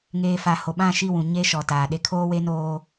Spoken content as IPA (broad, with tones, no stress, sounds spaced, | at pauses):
ŋ eː˨ f a˨ h o˨ ɓ ã˦˨ ʃ i˦˨ w ũ˨ ɲ e˦ ʃ ɔ˨ t aː˨ ɗ e˦ kʰ oː˦ w e˦ n oː˦